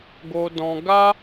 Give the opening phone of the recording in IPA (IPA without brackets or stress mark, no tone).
ɡ